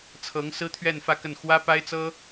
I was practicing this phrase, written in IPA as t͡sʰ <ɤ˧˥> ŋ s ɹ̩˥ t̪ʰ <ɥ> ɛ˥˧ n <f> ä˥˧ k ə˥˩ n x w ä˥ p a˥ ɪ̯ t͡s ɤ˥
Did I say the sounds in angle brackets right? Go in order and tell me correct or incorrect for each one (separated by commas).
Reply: correct, correct, correct